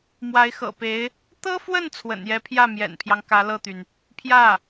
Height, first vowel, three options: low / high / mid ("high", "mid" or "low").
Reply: low